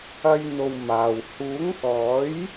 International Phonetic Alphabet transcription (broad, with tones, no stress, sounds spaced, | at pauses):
ɐ˧ j n̪ o˨ w m aː˨ w h uː˨˥ ŋ k ɔː˨˥ j